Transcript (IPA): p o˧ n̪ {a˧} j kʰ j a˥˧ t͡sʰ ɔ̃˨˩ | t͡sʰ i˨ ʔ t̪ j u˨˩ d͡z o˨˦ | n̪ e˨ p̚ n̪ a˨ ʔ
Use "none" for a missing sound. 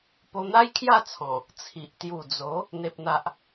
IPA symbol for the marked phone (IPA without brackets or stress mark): a˦